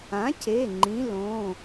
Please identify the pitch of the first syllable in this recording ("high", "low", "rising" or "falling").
rising